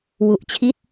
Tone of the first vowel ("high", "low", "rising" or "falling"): low